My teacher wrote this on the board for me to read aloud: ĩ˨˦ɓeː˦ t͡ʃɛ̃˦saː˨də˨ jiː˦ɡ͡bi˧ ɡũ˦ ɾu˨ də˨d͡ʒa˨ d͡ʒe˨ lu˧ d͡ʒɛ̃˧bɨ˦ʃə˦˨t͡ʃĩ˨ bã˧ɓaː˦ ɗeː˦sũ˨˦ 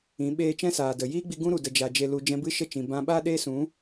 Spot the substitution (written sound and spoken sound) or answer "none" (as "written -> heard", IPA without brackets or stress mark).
none